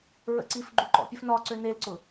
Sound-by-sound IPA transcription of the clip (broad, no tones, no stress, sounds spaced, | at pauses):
ɹ ə̰ ǀ i f ɡ͡ǃ u ǃ ɔ̰ pʲ ə f n ɒ ǀ ø n e l ǀ ʊ